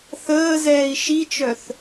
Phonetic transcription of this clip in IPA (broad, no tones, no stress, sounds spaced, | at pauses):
θ əː z ɛː i̯ ʃ i t͡ʃ œ θ